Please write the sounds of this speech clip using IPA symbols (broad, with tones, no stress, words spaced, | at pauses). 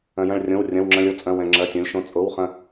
ɐ̃˩jɐ̃˧˩ɭrʲõ˩˧˩wrʲɐ̃˩˧˩w ŋ͡ǁɐ̃˧lʲo˧t͡sʼɐ̃˩˧˩ wɛ̃˩ŋ͡ǁɐ˩˧˩tʲõ˩˧lʲ ʃõ˩t͡sʼo˩˧˩wχɐ̃˧˩